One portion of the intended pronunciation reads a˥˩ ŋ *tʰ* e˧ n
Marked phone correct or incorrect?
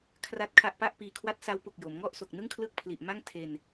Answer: correct